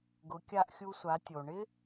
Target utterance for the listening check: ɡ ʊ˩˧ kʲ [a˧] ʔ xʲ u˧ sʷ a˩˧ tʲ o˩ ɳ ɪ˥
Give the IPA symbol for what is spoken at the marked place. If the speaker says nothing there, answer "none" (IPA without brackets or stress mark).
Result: a˧